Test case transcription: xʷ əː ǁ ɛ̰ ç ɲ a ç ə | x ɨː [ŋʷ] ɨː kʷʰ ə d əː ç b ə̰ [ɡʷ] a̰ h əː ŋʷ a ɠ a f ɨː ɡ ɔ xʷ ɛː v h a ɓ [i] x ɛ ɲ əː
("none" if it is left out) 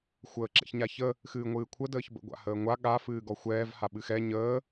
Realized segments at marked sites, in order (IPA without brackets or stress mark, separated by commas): ŋʷ, ɡʷ, ɨ